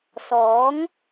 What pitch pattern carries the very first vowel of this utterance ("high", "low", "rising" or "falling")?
rising